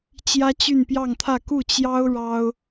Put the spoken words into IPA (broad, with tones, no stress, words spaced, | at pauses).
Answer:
t͡ɕjä˥t͡ɕy˥˧npjɑ˥˧ŋt̪ʰä˥˧ ku˥˩t͡ɕjɑ˥ʊ̯ ɻɑ˥ʊ̯